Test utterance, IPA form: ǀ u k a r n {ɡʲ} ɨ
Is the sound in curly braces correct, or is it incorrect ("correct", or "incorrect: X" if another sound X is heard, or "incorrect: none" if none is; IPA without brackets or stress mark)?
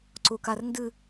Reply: incorrect: d